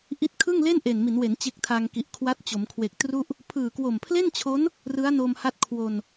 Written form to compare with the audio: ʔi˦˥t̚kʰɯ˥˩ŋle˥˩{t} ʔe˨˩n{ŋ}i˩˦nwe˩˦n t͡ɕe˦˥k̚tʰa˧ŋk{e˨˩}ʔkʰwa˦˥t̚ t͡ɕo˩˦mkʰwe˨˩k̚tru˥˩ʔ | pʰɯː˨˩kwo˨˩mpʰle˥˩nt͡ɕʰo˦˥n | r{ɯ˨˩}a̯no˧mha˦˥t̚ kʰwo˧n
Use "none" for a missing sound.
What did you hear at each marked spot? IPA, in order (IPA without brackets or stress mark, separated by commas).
n, m, i˨˩, ɯ˦˥